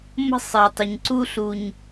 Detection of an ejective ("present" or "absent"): absent